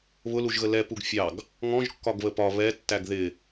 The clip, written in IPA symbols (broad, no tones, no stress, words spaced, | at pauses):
βʊluʒɣə lɛpuɡ fʲɑɡ | ŋɔ̃ʒkːɒɡβə pɒ βɛtːæɡ ðɪ